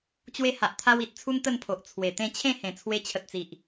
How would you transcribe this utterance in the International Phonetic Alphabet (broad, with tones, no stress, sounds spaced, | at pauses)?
t͡ɕ w e˦ h a˨ ʔ t̪ʰ a˦ w i˨ t̚ t͡sʰ u˦ n t̪ ə˥˧ n pʰ o˨ ʔ t͡sʰ w e˨˩ t̪ ẽ˥˧ t͡ɕʰ ẽ˥˧ h ẽ˨˩ t͡sʰ w e˧ t͡ɕʰ ə˨ t̚ t͡s i˨ ʔ